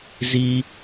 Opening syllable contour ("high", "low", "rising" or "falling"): high